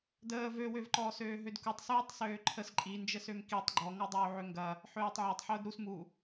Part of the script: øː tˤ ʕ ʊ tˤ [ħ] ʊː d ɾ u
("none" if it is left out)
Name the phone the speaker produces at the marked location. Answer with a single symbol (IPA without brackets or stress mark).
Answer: ħ